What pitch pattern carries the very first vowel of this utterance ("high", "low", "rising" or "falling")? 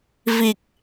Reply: low